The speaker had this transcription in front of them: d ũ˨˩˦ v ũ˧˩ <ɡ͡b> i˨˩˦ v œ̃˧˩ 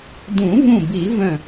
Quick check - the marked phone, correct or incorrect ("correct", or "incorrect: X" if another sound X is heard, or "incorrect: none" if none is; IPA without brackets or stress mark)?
incorrect: b